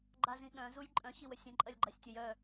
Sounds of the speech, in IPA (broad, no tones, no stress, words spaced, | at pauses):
ɡ͡ǃazĩɠœ̃ zujǃʼœ̃ ɕiwəsʲɐ̃ ǃʼɐlʲɡ͡ǃasʲtʲəj œ